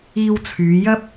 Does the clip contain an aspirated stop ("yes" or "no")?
yes